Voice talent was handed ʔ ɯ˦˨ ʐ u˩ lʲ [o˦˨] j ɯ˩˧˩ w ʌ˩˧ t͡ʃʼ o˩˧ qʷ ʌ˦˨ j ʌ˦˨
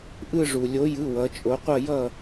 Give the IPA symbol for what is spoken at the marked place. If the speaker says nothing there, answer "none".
o˨˥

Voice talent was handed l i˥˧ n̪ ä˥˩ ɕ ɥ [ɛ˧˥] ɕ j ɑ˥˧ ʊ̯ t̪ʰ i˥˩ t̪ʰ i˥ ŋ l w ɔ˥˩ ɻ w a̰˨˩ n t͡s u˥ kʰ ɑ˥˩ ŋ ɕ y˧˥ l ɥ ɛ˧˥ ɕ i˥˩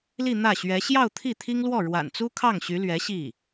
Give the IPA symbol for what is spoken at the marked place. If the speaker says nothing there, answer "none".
ɛ˧˥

